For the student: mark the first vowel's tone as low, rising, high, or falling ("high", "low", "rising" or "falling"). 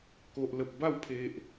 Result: low